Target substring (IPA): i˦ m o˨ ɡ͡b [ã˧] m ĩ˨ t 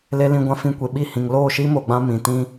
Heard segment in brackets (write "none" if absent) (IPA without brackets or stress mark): ã˧